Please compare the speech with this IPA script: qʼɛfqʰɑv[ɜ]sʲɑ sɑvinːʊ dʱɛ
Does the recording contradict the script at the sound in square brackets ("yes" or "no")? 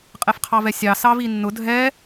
yes